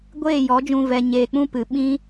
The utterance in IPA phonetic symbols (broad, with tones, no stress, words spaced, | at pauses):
ɡʷeː˦˨jɔ˨˦d͡ʒũ˧ vɛ˨ɲeː˨k͡pũ˦ pɨ˨ɓĩ˦